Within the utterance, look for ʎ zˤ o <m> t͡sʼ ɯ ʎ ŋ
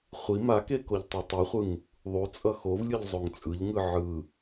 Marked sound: incorrect: ŋ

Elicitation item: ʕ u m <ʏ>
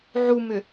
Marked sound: correct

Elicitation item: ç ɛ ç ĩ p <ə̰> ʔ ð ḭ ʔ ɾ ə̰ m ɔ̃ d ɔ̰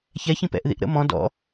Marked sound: incorrect: ɛ̰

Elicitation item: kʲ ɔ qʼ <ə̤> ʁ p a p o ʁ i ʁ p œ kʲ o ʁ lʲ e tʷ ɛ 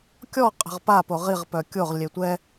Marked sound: correct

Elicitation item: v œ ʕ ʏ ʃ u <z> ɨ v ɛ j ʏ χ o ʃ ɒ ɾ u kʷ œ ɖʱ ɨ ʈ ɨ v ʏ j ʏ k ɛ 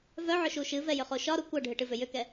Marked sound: incorrect: ʃ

